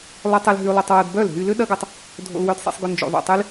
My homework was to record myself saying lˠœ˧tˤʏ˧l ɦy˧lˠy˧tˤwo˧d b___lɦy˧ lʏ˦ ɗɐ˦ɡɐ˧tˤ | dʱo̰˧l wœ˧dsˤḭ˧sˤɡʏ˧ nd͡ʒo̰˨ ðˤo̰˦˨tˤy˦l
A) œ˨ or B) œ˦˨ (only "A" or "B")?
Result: B